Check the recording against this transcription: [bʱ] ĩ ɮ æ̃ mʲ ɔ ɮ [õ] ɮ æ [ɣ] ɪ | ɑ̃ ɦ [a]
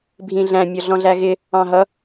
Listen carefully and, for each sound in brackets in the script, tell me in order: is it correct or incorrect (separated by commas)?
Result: correct, incorrect, correct, incorrect